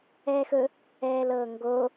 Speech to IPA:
ɛː x ɵ | ɛː l ɤː ŋ ɡ o

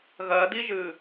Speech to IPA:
ɣ ɜ d i ʒ ɨ

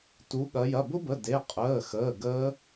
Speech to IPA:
t u˩˧ ɠ ɐ˩˧ j ɐ˩˧˩ b ʊ˦˥ b ə˩˧˩ d e˩˧˩ qʼ əː˩˧˩ x əː˩˧˩ ɡ əː˦˥

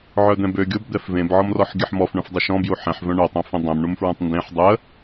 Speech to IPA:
ʕ œ d̪ ɛ̃ b ø ɡʲ o b d̪ ɛ f v ẽ b ʕ ɔ m r ɔ ħ ɡʲ ə ħ m ɔ f ɳ œ̃ f dˤ ø ʃ ɔ̃ b j u ħ ɛ̃ ħ v œ̃ ɳ o tˤ œ̃ f ẽ dˤ ɛ̃ m ɳ u m f ɹ œ̃ tˤ n d ẽ ħ dˤ ə

